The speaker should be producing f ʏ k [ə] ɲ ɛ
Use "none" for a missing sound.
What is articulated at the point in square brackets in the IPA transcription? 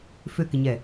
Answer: ɪ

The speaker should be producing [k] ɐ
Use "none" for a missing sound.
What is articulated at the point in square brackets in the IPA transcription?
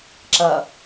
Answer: ǁ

